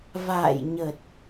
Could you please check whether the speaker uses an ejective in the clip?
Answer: no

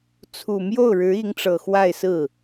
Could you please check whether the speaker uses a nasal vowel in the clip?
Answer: no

